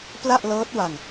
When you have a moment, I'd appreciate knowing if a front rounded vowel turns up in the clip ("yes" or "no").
no